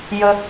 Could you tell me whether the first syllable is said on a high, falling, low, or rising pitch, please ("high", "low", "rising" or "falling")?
low